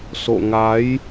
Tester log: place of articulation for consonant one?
alveolar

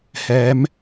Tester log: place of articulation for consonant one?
glottal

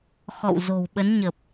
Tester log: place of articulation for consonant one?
velar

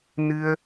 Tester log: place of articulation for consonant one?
alveolar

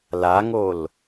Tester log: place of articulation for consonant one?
alveolar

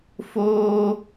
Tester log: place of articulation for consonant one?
labial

